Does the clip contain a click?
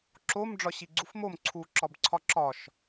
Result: yes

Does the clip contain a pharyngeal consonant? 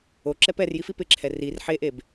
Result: yes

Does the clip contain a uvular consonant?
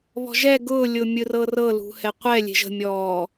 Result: yes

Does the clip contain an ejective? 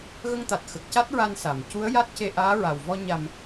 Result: no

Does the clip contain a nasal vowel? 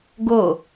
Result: no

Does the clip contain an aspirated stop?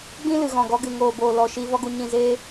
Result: no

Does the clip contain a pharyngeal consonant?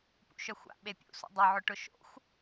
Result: yes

